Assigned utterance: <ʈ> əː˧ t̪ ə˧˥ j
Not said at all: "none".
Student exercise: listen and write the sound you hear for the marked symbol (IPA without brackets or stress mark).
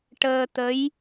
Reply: ʈ